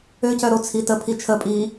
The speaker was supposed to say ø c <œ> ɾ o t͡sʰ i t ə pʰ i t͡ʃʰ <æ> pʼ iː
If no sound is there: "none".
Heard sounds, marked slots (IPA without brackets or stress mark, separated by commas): œ, ə